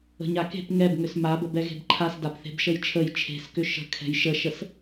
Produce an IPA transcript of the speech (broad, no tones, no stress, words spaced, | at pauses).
ə̤ɲake̤p ŋɛb ŋʏsmabə bɛɣe̤bǃʰas dapθe̤bʃəjt͡ʃʰəj t͡ʃʰe̤skʏ ʃə̤ kʰɛ̤jʃəʃəs